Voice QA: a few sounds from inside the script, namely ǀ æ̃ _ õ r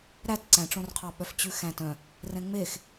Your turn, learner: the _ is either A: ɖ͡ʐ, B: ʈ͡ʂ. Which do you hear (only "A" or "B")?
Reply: B